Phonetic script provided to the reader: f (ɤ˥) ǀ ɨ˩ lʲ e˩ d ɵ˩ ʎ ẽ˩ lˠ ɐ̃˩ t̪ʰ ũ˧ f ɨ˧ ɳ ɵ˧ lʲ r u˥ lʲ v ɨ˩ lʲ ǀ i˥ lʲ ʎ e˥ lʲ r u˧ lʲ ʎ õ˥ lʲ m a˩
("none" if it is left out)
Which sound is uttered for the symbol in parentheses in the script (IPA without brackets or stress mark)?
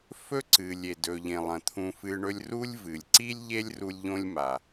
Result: ɵ˥